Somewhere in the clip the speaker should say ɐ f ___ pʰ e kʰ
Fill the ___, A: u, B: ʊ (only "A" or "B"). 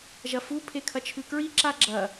A